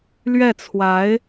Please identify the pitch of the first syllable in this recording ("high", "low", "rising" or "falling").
falling